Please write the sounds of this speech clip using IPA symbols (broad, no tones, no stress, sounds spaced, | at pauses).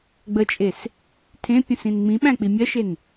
ɡ͡b ə t͡ʃʼ e s | tʰ ẽ pʲ ũ s ĩ n ŋ͡m ĩ ɓ æ̃ k͡p i mʲ ɜ ʃ e n